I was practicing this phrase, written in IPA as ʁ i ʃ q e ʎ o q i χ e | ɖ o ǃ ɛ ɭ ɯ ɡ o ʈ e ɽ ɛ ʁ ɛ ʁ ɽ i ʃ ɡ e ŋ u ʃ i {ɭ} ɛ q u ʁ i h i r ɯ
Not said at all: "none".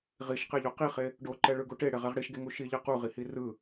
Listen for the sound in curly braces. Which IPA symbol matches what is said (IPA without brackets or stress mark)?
ʎ